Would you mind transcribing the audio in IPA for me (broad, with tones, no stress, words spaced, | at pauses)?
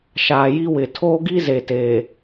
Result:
ʃaː˨ji˦wɪ˨ tʰoː˦ɡi˦ ze˨teː˨